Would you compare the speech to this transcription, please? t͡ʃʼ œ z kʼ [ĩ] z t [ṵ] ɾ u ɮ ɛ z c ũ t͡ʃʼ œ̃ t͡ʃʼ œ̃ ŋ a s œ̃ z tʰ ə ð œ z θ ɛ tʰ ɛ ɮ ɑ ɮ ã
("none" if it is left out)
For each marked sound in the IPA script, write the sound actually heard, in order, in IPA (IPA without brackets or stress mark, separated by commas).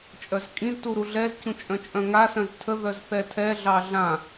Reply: ĩ, u